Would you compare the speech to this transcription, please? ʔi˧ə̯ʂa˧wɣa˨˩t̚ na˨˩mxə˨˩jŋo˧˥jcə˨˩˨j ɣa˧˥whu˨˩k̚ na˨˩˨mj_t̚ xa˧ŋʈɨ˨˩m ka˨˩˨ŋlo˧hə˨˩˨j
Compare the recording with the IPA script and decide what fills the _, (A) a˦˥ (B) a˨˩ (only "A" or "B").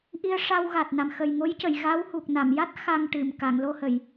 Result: A